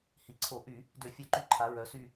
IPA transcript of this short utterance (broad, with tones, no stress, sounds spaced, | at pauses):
h i˩˧ ǀʰ o˧˩˧ ʔ y˧˩˧ | d ø˧˩˧ fʲ œ˧˩˧ ǃ y˧˩ ǃʰ a˩˧ ɹ œ˩˧ s y˧˩